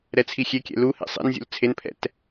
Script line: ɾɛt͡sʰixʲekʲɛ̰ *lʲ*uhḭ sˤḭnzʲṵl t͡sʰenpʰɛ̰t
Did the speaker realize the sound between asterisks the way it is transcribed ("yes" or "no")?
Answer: no